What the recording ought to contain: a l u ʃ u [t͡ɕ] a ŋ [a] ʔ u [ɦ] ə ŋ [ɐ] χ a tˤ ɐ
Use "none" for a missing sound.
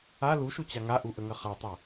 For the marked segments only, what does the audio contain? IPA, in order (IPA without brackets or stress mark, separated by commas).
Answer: t͡ɕ, a, ʔ, ɐ